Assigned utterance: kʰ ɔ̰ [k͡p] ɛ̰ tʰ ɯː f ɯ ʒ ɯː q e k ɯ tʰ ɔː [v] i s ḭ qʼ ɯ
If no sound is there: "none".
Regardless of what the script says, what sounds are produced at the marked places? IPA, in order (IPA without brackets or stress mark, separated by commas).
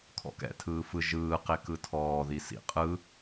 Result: k, ð